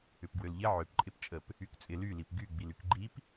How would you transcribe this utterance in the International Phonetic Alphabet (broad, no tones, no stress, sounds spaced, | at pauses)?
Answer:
ʏ p ɡ w ø l ʎ ɪ ʕ ø p ǃʼ ɪ p t͡ʃʼ ə p | y k t͡sʼ ɪ l y l i p ɡ y ɡ͡b i l y k ɡ͡ǃ i p